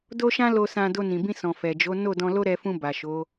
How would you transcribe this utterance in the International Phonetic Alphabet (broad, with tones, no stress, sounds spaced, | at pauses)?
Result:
d o˦ ʃ ã˦ l o˧ s ã˧ d o˧ n ĩ˨ b ĩ˧ s ɔ̃˨ f ɛ˨ d͡ʒ o˨˦ n o˦˨ d ɔ̃˧ l o˦ ɾ ɛ˧ f ũ˧ b a˨ ʃ o˨˦